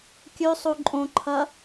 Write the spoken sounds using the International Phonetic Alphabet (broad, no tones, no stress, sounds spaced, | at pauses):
kʲ ʉ sˤ u ǃʼ õ ǃʰ ɐ